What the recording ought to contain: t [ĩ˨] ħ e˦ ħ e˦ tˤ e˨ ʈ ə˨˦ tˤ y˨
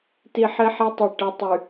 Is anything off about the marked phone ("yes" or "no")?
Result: yes